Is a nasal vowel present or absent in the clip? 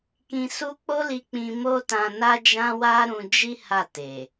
present